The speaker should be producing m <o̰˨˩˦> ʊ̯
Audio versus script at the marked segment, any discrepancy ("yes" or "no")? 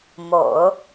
no